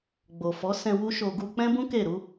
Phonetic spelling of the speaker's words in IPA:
ɡ͡b o˨ f ɔ˨˦ s ɛ̃˧ w u˦ ʃ o˧ ɡ u˧ k͡p ɛ̃˦ b ũ˦ k e˦˨ ɾ u˨˦

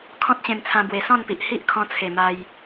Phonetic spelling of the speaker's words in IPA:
kʰ ɔ̃˦ t̚ ɕ ẽ˧ m t͡sʰ ã˧ b w e˨˩ s ɔ̃˥˧ n p i˨ ʔ h i˦ ʔ kʰ ɔ̃˧ t͡sʰ e˨˩ m a˦ j

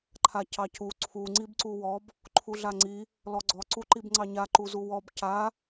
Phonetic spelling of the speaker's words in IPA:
ǃʰ a c ɑ c u ǀʰ u ŋ͡ǀ i b ǀ u w ɔ b | ǃʰ u ɮ a ŋ͡ǀ i | l ɔ ɡ͡ǀ ɔ ǀ u ǃ i b ŋ͡ǀ ɑ ɲ a ǃ u z u w ɔ b c a

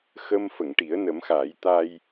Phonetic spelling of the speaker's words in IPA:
x ə˧ m f ə˨˩˨ ŋ ʈ i˨˩˦ ə̯ n ə˨˩˦ m x aː˨˩˦ j t̪ a˧ j

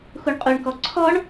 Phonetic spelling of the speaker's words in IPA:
x u ɳ qʼ u ɳ k ɔ ǀʰ ɔ ɳ

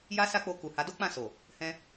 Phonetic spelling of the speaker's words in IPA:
j a˦ s a˦ k͡p o˧ k u˨ h a˨˦ d o˦ k͡p ã˦˨ s o˨ | h ɛ̃˧

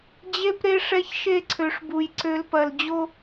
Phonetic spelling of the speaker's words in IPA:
d͡ʑ e˨ p ɾ e˨ ʂ ɛ˨ ç ʃ e˦˨ ǀʰ ø˨ ʂ b u˨ j ǀ ø˨ l p ɐ˨ l d͡ʑ o˦

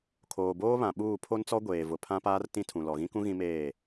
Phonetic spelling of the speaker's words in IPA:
kʰ oː˨ b oː˦ β ã˨ ɓ uː˦˨ pʰ o˦ n t͡s ɔ˦ ɡʷ eː˨ v ʊ˨ pʰ ã˦ p aː˦ r t ĩ˦ tʰ ũ˨ l ɔ˨ ɣ ĩ˦ k ũ˦ ɣ ĩ˦ m eː˦˨

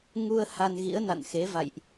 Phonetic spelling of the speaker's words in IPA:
ŋ u˧ ə̯ h a˧ n ɣ ḭ˧˥ ə̯ n a̰˧˨ n x e˨˦ v a̰˧˨ j ʔ

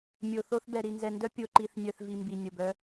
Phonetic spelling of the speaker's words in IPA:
mʲ o˨ θ o˦ θ b ɛ˨ ɾ i˨ n z ɛ˨ n d œ˦ pʲ o˨ ǃ i˨ θ nʲ œ˨ θ v i˦ m b i˨ nʲ o˨ b œ˦

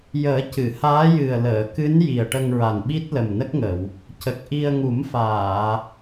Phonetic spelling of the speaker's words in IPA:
j əː˨˩˦ c ɨ˨˩˨ h aː˧˥ j ɨ˨˩ ə̯ l əː˨˩˨ k ɨ˧˥ n j i˨˩ ə̯ ʈ ə˧ ŋ ɹ a˨˩ n ɓ i˦˥ t̚ l ə˨˩ m n ə˦˥ k̚ ŋ ə˨˩˨ w | c ə˨˩ k̚ ʔ i˧ ə̯ ŋ u˨˩˦ m f aː˨˩˨

